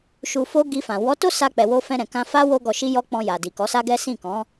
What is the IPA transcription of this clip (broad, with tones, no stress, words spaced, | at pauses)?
ʃu˧fo˦ ɡi˧fã˨ wɔ˨˦to˦ sa˧k͡pɛ˨ wo˧fɛ̃˧ɾɛ̃˨ kã˧fa˦ wo˦ɡɔ˧ʃi˦jɔ˦ k͡pɔ̃˧ja˨ di˨kɔ˨˦sa˦ɡɛ˦ sĩ˦˨kɔ̃˨˦